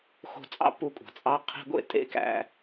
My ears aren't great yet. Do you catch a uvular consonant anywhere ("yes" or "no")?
yes